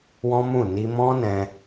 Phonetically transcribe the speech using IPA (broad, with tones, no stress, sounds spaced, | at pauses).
w ɔ̃˦ m ũ˦˨ n i˧ m ɔ̃˦ n ɛ̃˧